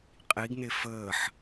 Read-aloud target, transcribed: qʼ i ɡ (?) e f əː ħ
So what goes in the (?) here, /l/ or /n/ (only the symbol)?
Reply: n